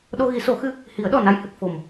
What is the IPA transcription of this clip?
ɗ o˧ ɣ i˨˩˦ s o˨˩˦ x ɨ˧ | h i˨˩˦ ə̯ ɗ ɔ˨˩ n a˧ j h ɨ˨˩ k̚ f o˨˩ m

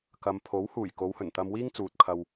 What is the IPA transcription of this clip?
k ɐ˨ m pʰ o˨˥ w h uː˨˩ j k o˨˧ w h ɵ˨˩ n t̪ ɐ˧ m w iː˥ ŋ t͡s uː˨ t̚ kʰ ɐ˧ w

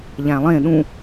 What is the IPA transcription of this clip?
ʎ æ̃ lˠ ẽ ɗ ũ

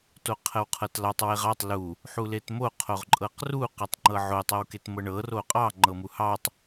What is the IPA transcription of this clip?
t o qʰ ə w qʰ ɤ t l ɑ tˤ w e ʁ ɑ tˤ l u | ħ u l e t m o qʰ o ʁ ǃʼ ɤ q r u q ɤ tˤ ŋ͡ǃ ɤ ʕ o tˤ ɤ w k e t m ɤ ɳ ɤ r o qʼ ɑ ŋ͡ǃ ɤ m u h ɑ tˤ

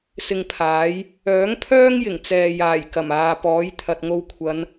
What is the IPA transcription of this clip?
s ɪ˧ ŋ pʰ aː˨˥ j | œː˨˥ ŋ pʰ œː˥ ŋ j ɪ˨˩ ŋ t͡s ɛː˨ j aː˨˩ j k ɐ˨˩ m aː˨ p ɔː˨˥ j t̪ʰ ɐ˨ t̚ ŋ o˧ w kʷʰ ɐ˨˧ n

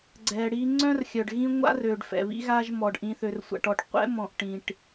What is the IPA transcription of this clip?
ɡ͡ǀ ɛ˨ ɽ i˨ ŋ͡ǀ œ̃˦ r xʲ œ˨ ɖ ɣ ĩ˦ ŋʷ a̰˦ r ø˨ ɖ f ɛ̰˨ β ḭ˦ ɣ a˦ ʒ m ɔ˨ ɖ ʔ ĩ˨ θ ø˨ r sʷ a̰˨ ʈ ɔ˨ ʈ qʷ ɛ̰˦ m ɔ̃˨ ʔ ʈ ĩ˨ ʈ

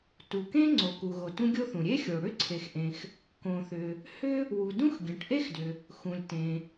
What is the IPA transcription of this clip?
t u˩ k ẽ˥ ŋ͡ǀ o˩ k u˩ ɣ o˩ t ũ˥ ɡʲ o˥ θ ũ˩ ɾʲ e˥ xʲ o˩ ɽ ʏ˥ ǀʰ e˩ x ʔ ẽ˩ x | k õ˩ θ ʏ˩ | h ʏ˥ | w u˩ d ũ˥ x ɡʲ ẽ˩ ʈ ʔ e˥ x d ʏ˩ | x ũ˩ lʲ t ẽ˩

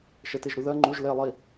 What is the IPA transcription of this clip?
ʃ ɜ t e ʒ ɾ u ð ɜ ŋ͡ǃ u ʒ l e lˠ i

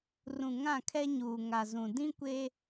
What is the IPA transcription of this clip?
r ũ˨ ŋ ã˦˨ kʰ ɛ˦ ɲ uː˨ ŋ a˨ z ũ˨ d ĩ˦ kʷ eː˦

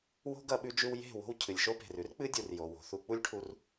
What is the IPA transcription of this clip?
w o̤˦ ɡ ɐ˧ ɓ ʉ˧ d͡ʒ ʉ˧ w j e̤˦˨ w o̤˧ w cʰ ɨ˨ lʲ ʃ o˧ p e̤˨ r ʉ˦ r k͡p ɨ˦ dʲ u˨ r j o˨ w o̤˨ θ u˧ k͡p u˦ lʲ ʈʰ u˧ r

